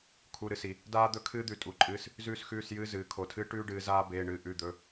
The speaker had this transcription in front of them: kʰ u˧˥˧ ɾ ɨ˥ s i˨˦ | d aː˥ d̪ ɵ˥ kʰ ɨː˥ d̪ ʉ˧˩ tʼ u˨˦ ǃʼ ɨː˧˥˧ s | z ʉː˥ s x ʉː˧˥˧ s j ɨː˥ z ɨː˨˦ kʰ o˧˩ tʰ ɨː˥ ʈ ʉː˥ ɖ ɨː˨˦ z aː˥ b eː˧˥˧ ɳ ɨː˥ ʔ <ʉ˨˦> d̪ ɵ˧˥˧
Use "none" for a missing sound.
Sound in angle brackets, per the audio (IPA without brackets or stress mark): ʉ˧˥˧